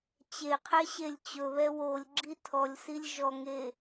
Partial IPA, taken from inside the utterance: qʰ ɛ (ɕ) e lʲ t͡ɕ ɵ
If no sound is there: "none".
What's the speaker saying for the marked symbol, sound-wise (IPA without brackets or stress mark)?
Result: ɕ